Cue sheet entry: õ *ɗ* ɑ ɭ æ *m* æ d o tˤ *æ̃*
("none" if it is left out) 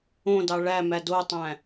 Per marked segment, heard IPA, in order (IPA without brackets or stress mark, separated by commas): d, m, æ̃